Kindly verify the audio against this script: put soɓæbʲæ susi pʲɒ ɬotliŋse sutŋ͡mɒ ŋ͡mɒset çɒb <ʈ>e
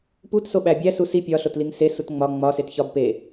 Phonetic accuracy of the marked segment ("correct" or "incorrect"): incorrect